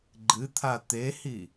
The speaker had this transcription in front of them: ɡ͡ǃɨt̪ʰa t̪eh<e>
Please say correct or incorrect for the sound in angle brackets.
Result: incorrect